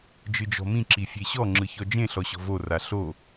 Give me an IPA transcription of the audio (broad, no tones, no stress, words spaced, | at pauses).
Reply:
d͡ʒɯd͡ʒɔ̤mĩ ǁifʲeɕɔ ŋ͡ǁɯçɔd͡ʒẽ ɬɔɕɔ̤vo raɬo